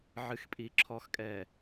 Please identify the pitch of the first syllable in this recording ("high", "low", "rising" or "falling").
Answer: low